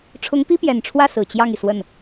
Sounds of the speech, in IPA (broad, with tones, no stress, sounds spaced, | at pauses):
ʈ͡ʂʰ ʊ˧˥ ŋ p i˥ p j ɛ˨˩ n ʈ͡ʂʰ w ä˥˩ s ɹ̩˨˩ t͡ɕ j ɑ˥˩ ŋ i˩ s w ə˥˩ n